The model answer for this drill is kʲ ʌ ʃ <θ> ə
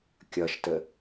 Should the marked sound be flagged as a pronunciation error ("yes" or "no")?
yes